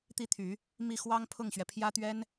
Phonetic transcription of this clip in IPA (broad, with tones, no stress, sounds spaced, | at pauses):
t̪ i˥˩ t̪ʰ y˨˩˦ | m i˥˩ x w ɑ˥ ŋ pʰ ʊ˥˩ ŋ ɕ ɥ ɛ˩ pʰ j ä˥ t̪ ɥ ɛ˥ n